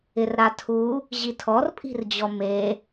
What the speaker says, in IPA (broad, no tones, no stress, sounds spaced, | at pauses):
ɪ r ɾ a tʰ u | ʑ i tʰ ɔ r pʼ i̤ r d͡ʑ ɔ m e